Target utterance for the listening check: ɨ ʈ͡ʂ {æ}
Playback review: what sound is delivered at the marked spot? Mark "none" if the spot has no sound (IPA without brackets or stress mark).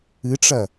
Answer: ɐ